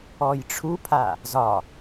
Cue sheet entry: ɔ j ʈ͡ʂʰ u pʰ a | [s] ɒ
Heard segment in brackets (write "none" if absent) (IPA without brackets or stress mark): z